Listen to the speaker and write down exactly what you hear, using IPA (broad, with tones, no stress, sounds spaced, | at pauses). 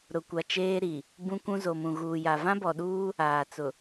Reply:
ɾ ʊ˨ kʷ a˨ t͡ʃ eː˦ ɾ i˨ | b ũ˦ kʷ ũ˦ z o˨ m ũ˨ ɣ uː˨ j a˨ v ã˦ b ɔ˨ ɗ uː˦ | aː˨ t͡s ʊ˨